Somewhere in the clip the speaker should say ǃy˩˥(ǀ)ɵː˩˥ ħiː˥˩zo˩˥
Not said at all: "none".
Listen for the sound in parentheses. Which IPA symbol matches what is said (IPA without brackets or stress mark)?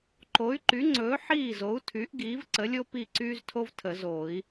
ŋ͡ǀ